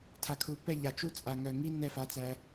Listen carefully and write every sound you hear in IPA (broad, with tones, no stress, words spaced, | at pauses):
tʰa˨kʰu˨pɛ˦˨ ʎa˨t͡ʃu˦ t͡sʼa˨ŋœ˨ ŋi˧ nɛ˦˨fa˧t͡sæ˧